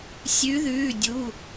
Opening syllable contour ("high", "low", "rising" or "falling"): rising